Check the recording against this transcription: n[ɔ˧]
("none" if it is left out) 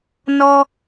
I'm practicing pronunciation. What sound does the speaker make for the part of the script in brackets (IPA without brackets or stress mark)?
ɔ˧